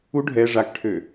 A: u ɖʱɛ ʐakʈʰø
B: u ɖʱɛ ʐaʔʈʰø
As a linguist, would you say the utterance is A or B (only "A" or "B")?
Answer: A